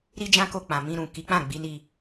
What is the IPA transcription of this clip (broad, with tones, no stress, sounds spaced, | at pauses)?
ɾ i˦ d͡ʒ ã˦ k o˧ k͡p ã˨ m ĩ˧ ɾ ũ˨ k i˨˦ k͡p ã˦˨ ɡ͡b i˨˦ n i˧